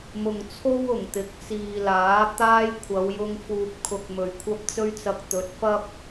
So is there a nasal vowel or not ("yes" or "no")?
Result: no